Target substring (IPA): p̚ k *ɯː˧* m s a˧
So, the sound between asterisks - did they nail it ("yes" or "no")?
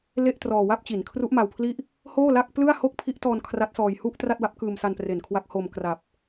yes